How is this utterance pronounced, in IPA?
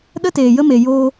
ɗ ə˦ t eː˨ j ə˦ m e˨ j oː˦

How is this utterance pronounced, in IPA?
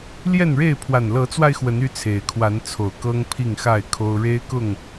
l j ɛ˥˨ n ɻ e˥˨ ɪ̯ pʰ w a˨˩ n l ɤ˨˦ t͡s w a˧ ɪ̯ x w ə˨˦ n y˦ t͡sʰ e˨˩ ɪ̯ kʰ w a˨˦ n t͡sʰ o˨˩ ʊ̯ k ɤ˦ ŋ pʰ i˥˨ ŋ x a˥˨ ɪ̯ kʰ o˦ ʊ̯ ɻ e˦ ɪ̯ k ʊ˥˨ ŋ

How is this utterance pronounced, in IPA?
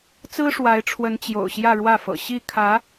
t͡s ɹ̩˥ ʂ w a˧˥ ɪ̯ ʈ͡ʂʰ w ə˧˥ n t͡ɕ j o̰˨˩ ʊ̯ ɕ j ä˥˧ ɻ w ä˥˩ f ɤ̰˨˩ ɕ i˥˩ kʰ ä˧˥

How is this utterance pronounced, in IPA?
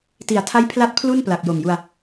t i˨˩ a̯ tʰ a˦˥ j pʰ l a˦˥ t̚ pʰ l u˥˩ n p l a˨˩ k̚ j o˨˩ m j u˧ a̯

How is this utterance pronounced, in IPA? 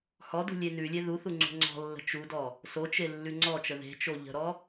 h ɔ d ṳ lʲ e n ʉ lʲ e ð u θ u ŋ͡ǀ ṳ ŋ͡ǀ ɔ̤ lː ə̤ t͡ʃ u d ɔ | s o t͡ʃ e lː ʉ ŋ͡ǀ ɔ t͡ʃ ə ð e̤ t͡ʃ o ʎ ə̤ ɾ ɔ

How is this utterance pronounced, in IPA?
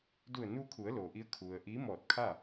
d u˧˩ ə̯ n uː˧ kʰ u˩˧ ə̯ l o˩ ʔ i˧˥ ə̯ kʰ u˩ ə̯ ʔ iː˧˥ m ɔː˧˩ t̚ kʰ a˥˨

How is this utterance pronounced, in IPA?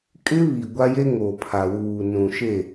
kʼ ɪ˦ β i˨ ɡʷ a˦ j e˦ ŋ o˨ pʰ a˨ w uː˨ n ũ˨ ʃ e˦˨

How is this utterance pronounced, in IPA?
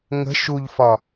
ŋ ə̤ ʃ u ʎ f ɒ

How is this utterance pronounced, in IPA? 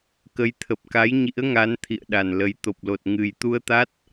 k ə˨˦ j t̪ʰ ə˨˩ p̚ k a˨˦ j ɲ ḭ˧˥ ə̯ ŋ a˨˦ n t̪ʰ ḭ˧˨ ə̯ ɗ a˨˩ n l ə˨˦ j t̪ o˨˩ p̚ l o˨˩ t̚ ŋ ɨ˨˩ j t̪ u˧ ə̯ t̪ a˦˥ t̚

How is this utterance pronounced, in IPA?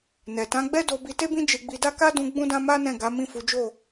n ɛ˨ t ã˨˦ ɡ͡b ɛ˦ d o˧ b i˧ t e˦ b ĩ˦ d͡ʒ e˧ ɡ͡b i˧ d a˦ k a˦ d ũ˧ ɡ͡b ũ˦ d ã˦ m a˦ n ɛ̃˦˨ ɡ a˨˦ m ĩ˦˨ f u˨˦ d͡ʒ o˦˨

